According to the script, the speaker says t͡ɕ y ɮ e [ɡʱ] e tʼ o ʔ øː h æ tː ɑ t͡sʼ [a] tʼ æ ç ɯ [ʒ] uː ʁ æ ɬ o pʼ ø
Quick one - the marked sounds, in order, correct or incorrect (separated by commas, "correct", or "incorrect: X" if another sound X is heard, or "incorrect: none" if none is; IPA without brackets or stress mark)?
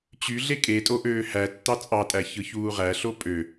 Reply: incorrect: kʼ, incorrect: ɑ, incorrect: ç